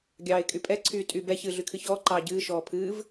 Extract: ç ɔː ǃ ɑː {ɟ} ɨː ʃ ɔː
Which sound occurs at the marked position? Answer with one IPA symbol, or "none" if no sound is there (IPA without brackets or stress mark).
ɟ